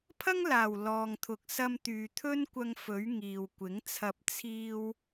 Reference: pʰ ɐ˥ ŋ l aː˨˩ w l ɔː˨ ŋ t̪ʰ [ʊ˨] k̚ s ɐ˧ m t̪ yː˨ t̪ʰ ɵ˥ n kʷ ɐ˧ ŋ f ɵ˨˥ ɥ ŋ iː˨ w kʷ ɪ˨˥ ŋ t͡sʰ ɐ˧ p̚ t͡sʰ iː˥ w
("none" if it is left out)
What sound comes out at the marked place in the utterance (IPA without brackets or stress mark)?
ʊ˨